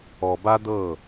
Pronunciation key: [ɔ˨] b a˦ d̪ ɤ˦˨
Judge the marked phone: correct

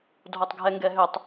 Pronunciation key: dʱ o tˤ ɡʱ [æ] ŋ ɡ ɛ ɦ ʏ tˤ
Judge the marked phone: incorrect: ɛ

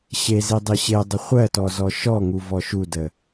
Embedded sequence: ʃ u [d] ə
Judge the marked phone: correct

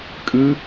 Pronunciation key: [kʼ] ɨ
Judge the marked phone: correct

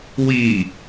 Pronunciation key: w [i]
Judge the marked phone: correct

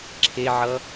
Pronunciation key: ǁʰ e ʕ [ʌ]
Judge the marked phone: correct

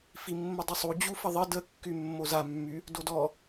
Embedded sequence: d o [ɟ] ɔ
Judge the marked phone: incorrect: d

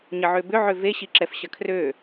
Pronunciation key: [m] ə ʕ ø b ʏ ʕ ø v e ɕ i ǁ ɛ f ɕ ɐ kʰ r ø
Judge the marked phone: incorrect: ɲ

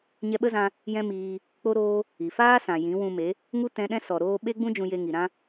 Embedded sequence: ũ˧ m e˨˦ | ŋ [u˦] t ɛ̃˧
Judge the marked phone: correct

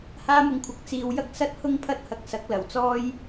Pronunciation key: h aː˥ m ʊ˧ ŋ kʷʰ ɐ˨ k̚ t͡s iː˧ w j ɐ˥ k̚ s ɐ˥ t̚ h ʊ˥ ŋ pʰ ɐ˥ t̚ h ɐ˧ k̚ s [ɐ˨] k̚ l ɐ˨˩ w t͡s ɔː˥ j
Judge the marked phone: incorrect: ɐ˨˥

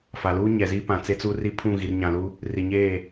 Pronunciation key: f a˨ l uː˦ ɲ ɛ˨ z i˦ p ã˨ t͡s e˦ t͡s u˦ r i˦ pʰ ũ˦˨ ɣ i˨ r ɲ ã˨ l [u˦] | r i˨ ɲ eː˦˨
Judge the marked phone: correct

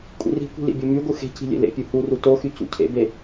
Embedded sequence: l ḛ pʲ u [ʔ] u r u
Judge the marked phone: incorrect: h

